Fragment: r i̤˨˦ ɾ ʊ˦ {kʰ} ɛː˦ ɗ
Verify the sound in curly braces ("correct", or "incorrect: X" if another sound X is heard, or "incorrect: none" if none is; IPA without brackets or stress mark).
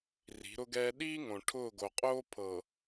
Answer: incorrect: ɡ